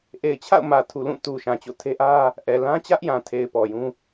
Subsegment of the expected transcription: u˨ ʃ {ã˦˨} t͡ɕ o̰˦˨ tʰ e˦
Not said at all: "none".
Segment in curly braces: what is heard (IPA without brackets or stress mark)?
ã˨